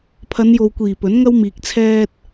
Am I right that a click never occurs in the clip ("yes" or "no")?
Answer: yes